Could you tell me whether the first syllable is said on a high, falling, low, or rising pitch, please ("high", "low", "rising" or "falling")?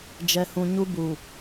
low